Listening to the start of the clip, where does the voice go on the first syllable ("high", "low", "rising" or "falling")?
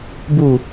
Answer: falling